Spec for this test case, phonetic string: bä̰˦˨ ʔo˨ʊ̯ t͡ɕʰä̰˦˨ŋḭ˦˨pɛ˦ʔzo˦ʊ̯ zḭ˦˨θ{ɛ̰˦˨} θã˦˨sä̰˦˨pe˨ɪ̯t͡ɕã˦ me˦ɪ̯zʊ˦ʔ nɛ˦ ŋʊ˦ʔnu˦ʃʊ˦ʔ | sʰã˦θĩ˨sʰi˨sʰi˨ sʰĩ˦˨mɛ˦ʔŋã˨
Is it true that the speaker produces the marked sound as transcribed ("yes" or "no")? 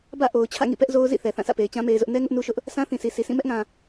no